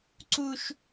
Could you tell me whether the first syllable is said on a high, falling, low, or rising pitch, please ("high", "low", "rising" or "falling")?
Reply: high